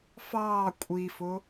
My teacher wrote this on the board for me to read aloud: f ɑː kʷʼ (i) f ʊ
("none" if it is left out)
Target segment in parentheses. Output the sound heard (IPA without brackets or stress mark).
i